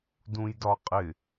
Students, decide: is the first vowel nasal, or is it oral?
nasal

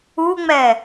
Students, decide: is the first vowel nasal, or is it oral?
oral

